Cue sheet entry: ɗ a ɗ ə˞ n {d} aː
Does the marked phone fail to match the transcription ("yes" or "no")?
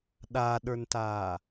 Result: yes